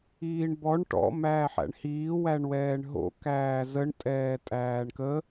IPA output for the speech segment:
iː ɳ b ɔ ɳ ʈ ɔ̰ m æː ħ æ̰ ɳ h iː w æ ɳ w ɛː ɳ ɦ o̰ k æː z ə ɳ tʼ ɛː tʼ æː ɳ k ə

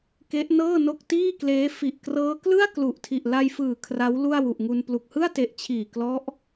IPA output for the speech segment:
k e˦˥ ʔ n ɤː˥˩ n o˥˩ k̚ t iː˥˩ k l eː˦˥ f i˨˩ ʔ k r ɤː˦˥ k l ɯ˥˩ a̯ k l u˨˩ ʔ tʰ i˨˩ ʔ l a˧ j f ɯː˨˩ kʰ r a˦˥ w l u˥˩ a̯ w u˨˩ ʔ ŋ u˧ n p l u˨˩ k̚ h ɯ˥˩ a̯ t e˨˩ ʔ t͡ɕʰ iː˨˩ k l ɔ˦˥ ʔ

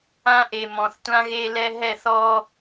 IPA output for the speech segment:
ã˦ ʔ e˨ m ɔ̃˨ θ tʷ ã˦ ɣ e˦ l ɛ˦ ɦ ɛ˦˨ θ ɔ˦

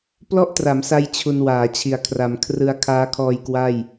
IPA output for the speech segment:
p l ɔ˥˩ ʔ t r a˩˦ m s a˧ j t͡ɕʰ u˧ n w aː˩˦ t͡ɕʰ i˨˩ a̯ kʰ r a˩˦ m kʰ r ɯ˧ a̯ kʰ aː˦˥ kʰ ɔː˧ j k w a˥˩ j

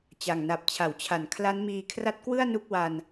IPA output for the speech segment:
t͡ɕ a˨˩ ŋ n a˨˩ p̚ t͡ɕʰ a˩˦ w t͡ɕʰ a˩˦ n kʰ l a˦˥ n m iː˧ kʰ r a˦˥ t̚ k w ɯ˥˩ a̯ n u˥˩ k̚ w a˧ n

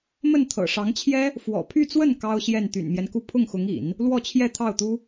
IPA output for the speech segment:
m ə˥˩ n t̪ʰ ɤ̰˨˩ ʂ ɑ˧˥ ŋ t͡ɕʰ j ɛ˥ | f w ɔ̰˨˩ pʰ y˥˧ t͡s w ə˥˩ n k ɑ˥ ʊ̯ ɕ j ɛ˥˩ n t̪ y̰˨˩ n m j ɛ˦ n k u˥˧ pʰ ʊ˥˩ ŋ x ʊ˧˥ ŋ ḭ˨˩˦ n | l w ɔ˥˧ t͡ɕʰ j ɛ˥˧ t̪ʰ ɑ˥˩ ʊ̯ t̪ u˥

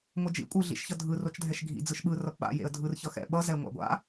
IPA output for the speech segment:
ŋʷ ʌ d͡ʒ ḭ kʷʼ ɯ ɮ ḭ ʃ ç ʌ dʱ ɯ r o t͡ʃ dʱ ɛ ʃ ɡʱ ḭ d͡z ɯ ʃ ɓ ɯ r ʌ p ɓ a̰ j ḛ ə̯ dʱ ɯ r ç ʌ x ɛ̰ ɓ ʌ z ɛ ŋʷ a̰ ɡʷ a̰

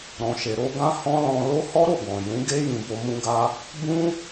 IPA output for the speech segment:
ɾ ɔ̃˧ ʃ e˧ ɾ o˧ ɡ ã˦ h ɔ̃˦ l ɔ̃˧ l o˦ h ɔ˦ ɾ o˦˨ ɡ ɔ̃˨ j ũ˨˦ ɡ e˦ j ĩ˧ b o˧ m ũ˧ ɡ a˧ | b ũ˦

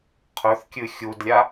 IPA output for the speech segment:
qʰ ɵ θ kʲ ɨ xʲ u d lʲ a

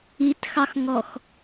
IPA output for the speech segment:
i t x ɑ x ŋ ɔ x

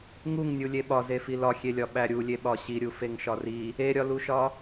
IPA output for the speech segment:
ŋ u ŋ nʲ u lʲ e ɓ ɒ z e f i l ɒ xʲ e lʲ ɒ ɓ æ ɾʲ u lʲ e ɓ ɒ ɕ i ɾʲ u f e ŋ ʃ ɒ r i | e ɾʲ ɒ l u ʃ ɒ

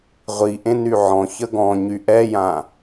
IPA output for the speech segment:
ʁʷ i ʔ ẽ n y ʕ ɔ̃ ç ə ɡ ɔ̃ ɲ y ʔ ɛ j ã

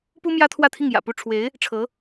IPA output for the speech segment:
p u˥ m j ä˥ t̪ʰ w ä˥˧ t̪ʰ i˥˩ ŋ j ä̰˨˩ p u˥˩ ʈ͡ʂʰ w e˧˥ ɪ̯ | ʈ͡ʂʰ ɤ˧˥

